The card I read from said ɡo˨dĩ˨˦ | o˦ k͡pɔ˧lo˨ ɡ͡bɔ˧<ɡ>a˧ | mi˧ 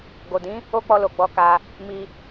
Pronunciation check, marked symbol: incorrect: k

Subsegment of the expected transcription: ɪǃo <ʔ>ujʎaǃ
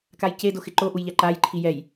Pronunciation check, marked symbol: correct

